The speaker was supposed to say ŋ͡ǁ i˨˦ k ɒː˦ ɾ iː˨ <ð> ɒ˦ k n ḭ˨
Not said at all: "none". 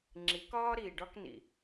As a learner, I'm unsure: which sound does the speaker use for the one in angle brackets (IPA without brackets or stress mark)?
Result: ɖ